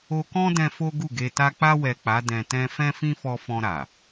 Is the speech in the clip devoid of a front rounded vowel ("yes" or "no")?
yes